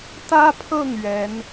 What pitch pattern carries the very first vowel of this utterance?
high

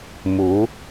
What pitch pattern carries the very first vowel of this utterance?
rising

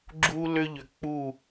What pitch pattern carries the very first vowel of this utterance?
high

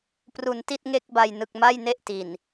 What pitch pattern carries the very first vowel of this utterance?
low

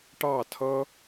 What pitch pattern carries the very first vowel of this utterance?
falling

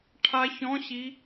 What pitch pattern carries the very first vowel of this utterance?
rising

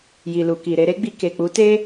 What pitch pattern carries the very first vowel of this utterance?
low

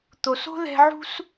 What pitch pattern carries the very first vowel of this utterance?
low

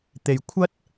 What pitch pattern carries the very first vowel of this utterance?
low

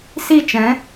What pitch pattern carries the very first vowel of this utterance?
falling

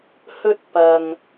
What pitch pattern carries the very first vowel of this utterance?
high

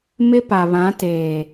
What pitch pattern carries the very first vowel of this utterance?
high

